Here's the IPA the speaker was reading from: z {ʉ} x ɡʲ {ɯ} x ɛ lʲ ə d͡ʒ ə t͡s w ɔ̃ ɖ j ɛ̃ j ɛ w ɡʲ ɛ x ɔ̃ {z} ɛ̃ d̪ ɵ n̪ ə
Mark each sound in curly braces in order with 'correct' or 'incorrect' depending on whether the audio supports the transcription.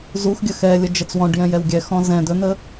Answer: incorrect, incorrect, correct

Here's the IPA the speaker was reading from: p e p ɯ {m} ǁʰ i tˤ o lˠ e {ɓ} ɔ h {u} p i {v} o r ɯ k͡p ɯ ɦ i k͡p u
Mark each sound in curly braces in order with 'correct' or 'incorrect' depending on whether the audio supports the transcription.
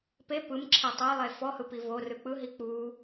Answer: correct, incorrect, incorrect, correct

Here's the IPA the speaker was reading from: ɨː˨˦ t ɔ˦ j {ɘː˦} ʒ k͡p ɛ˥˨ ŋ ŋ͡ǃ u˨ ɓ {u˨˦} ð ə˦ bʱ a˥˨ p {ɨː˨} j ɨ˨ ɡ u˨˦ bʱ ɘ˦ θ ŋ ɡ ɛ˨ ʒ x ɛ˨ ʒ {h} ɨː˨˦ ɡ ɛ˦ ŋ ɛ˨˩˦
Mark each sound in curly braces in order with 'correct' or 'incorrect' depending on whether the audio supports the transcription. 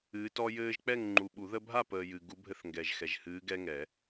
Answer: correct, incorrect, incorrect, correct

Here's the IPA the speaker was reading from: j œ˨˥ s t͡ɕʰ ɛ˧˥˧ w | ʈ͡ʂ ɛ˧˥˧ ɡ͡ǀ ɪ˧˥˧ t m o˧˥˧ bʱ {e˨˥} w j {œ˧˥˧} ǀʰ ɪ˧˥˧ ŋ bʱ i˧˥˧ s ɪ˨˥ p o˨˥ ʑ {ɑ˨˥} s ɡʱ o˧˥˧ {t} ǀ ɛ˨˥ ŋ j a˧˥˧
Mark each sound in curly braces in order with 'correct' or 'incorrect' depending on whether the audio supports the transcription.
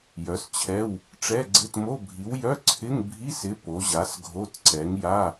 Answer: incorrect, correct, incorrect, correct

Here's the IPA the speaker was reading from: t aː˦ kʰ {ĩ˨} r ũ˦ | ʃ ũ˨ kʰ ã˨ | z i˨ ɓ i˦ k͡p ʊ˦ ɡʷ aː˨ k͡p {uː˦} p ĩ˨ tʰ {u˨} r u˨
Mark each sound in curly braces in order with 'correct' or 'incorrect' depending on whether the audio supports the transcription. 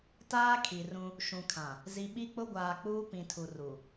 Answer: incorrect, correct, correct

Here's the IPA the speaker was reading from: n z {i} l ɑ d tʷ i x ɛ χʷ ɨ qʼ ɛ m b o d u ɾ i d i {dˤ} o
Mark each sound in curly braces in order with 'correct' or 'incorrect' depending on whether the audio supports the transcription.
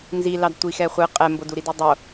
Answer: correct, correct

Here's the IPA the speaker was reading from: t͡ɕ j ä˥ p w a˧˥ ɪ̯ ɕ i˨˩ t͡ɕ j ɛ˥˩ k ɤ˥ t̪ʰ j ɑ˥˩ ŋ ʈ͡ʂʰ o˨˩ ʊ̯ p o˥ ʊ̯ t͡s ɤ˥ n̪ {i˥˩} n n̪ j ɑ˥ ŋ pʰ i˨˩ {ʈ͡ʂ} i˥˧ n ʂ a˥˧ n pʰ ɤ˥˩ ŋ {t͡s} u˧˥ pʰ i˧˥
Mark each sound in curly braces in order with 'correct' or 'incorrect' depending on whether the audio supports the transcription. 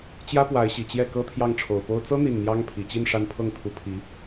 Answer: correct, incorrect, incorrect

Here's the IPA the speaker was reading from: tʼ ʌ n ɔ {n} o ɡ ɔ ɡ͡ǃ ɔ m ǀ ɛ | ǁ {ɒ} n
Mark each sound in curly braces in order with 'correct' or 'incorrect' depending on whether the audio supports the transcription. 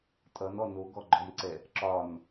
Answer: correct, correct

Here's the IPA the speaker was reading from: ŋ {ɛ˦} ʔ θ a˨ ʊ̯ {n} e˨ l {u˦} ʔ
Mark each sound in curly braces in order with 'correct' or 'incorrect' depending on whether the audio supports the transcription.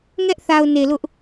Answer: correct, correct, incorrect

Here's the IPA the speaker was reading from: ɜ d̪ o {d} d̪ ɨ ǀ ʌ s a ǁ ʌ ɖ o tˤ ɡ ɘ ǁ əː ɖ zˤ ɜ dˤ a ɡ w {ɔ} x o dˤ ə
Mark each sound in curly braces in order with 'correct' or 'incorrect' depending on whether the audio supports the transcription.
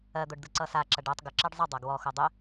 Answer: incorrect, correct

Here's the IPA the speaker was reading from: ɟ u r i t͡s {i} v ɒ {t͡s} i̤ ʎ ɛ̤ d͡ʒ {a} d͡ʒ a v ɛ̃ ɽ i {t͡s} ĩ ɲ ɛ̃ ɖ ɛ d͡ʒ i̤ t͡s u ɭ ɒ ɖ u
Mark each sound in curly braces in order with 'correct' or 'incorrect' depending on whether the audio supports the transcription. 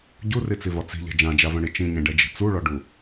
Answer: correct, correct, incorrect, incorrect

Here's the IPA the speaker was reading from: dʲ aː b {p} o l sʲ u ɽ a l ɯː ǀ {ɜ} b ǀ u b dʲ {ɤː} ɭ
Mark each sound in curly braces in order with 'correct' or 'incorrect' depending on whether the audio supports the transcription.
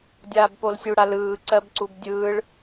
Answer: correct, correct, incorrect

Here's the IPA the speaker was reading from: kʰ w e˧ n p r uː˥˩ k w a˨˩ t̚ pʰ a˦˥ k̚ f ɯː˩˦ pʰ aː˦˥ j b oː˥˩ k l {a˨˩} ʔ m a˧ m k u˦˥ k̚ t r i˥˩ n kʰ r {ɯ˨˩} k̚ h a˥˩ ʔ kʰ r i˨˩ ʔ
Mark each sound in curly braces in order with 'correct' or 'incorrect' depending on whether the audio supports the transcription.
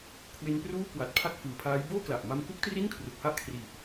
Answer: correct, incorrect

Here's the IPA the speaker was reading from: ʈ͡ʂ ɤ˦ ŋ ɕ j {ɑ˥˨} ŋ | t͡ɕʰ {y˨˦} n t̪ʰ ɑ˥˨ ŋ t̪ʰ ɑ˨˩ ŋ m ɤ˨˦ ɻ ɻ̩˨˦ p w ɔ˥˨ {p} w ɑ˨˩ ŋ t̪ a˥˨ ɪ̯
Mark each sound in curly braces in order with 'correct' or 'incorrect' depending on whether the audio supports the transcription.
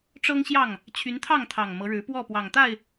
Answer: correct, correct, correct

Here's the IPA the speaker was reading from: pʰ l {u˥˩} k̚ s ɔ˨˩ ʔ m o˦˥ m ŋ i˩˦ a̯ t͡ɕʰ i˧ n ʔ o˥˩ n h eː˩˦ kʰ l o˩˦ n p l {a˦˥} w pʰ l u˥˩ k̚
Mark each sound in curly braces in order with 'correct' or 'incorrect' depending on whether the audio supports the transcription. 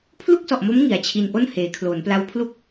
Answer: correct, correct

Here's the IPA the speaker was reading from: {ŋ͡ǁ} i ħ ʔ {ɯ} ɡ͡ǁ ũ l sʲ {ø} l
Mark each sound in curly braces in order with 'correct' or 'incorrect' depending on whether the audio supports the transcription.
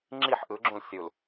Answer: correct, correct, incorrect

